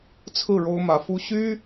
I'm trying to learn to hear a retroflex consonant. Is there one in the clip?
yes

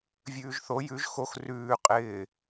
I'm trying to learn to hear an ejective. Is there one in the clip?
yes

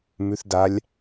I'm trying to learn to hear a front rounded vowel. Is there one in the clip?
no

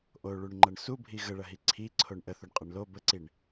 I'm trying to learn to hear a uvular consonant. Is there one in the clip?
yes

